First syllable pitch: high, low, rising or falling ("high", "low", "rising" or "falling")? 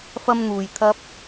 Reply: high